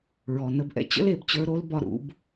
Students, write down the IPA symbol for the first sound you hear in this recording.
ɹ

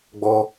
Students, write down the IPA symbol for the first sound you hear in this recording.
ɡ͡b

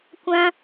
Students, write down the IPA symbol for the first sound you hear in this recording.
kʷ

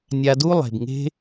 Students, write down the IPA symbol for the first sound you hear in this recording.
nʲ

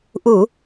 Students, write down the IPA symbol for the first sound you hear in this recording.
ʔ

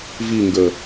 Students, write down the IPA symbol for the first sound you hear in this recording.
v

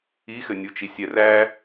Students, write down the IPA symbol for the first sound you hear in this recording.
i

